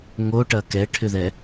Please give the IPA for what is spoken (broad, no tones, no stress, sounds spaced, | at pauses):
ŋ o ʈ ɐ k ɛ ʈʰ ʏ ð ɛ